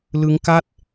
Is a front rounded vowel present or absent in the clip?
absent